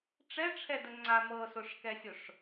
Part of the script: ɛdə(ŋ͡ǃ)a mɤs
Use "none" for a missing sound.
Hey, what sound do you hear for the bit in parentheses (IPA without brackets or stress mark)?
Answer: ŋ͡ǀ